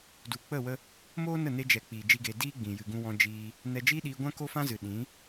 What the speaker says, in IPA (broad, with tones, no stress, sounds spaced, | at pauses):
d u˨ k͡p ə˦˨ w ə˧ | m oː˦ n ə˦˨ n e˧ d͡ʒ ɛ˨ k͡p iː˨ d͡ʒ i˦ ɡ eː˧ d iː˦ ɡ͡b ĩ˨ j ɨ˨ ɡ ũ˧ w ɔ̃˧ d͡ʒ iː˧ | n ɛ˧ d͡ʒ iː˦ ɗ iː˧ ɡʷ ã˦ k o˦ f ã˦ z ɨ˨ ɗ ĩ˨˦